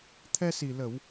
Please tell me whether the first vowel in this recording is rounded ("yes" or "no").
no